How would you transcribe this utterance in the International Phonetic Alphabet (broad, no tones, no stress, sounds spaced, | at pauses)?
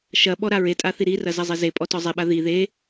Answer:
ʃ ɐ ɓ ɔ ɾ a ɹ e tʼ a θ i ɾ i r ɐ z ɐ zˤ e z e pʼ ɔ t ɔ zˤ e ɓ a ð i ð e